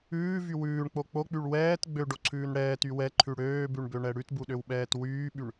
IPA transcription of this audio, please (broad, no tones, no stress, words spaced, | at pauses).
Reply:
ʉːvy wʉːɳk͡po k͡pok͡pyɭ wɛːt ɡ͡bøɖoǀʰʉːn ɽɛːty wɛǃʰʉ ɽøːbʉɳbøɳɛ ɽʉtbuɗøwɓɛːt wyːɓyɳ